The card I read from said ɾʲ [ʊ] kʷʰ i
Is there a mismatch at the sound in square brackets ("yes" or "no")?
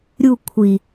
yes